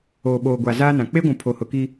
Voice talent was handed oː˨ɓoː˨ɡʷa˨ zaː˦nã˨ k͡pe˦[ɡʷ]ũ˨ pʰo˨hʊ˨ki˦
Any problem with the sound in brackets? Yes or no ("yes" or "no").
no